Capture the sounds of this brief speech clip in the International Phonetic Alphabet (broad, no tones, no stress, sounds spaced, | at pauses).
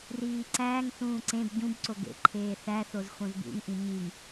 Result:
r iː ǀ æː ŋ θ ũː ǀ ẽ b ɟ ũ b ǀ o ɡ ḛ ǃʰ eː θ æ θ o z x õ z b ṵ ŋ ʔ ĩ ɲ i ŋ